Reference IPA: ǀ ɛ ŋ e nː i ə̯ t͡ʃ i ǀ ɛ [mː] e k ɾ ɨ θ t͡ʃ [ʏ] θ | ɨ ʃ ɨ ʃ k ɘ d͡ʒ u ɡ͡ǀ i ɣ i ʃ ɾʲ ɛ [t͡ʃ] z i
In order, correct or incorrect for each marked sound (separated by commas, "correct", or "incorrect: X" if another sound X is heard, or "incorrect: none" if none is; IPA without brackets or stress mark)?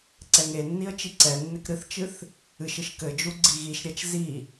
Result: incorrect: nː, incorrect: ɨ, correct